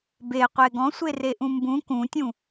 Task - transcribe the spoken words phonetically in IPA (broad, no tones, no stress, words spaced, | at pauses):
be qʷeɡɔ̃ sʷereʔũmbũ kũtʲũ